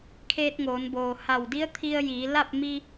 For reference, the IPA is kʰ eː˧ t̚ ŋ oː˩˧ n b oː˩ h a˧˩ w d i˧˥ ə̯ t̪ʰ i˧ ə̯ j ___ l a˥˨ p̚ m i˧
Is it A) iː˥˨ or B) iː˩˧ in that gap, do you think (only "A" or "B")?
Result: B